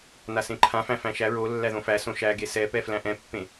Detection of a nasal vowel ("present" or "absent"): present